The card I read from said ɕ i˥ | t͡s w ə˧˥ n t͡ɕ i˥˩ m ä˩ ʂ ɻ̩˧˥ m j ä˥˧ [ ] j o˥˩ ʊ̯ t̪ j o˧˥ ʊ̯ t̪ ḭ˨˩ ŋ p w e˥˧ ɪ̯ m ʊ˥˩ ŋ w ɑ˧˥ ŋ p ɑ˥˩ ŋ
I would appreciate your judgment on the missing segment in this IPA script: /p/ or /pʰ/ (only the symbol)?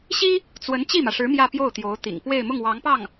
p